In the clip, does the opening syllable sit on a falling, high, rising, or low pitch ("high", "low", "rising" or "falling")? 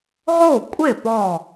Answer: falling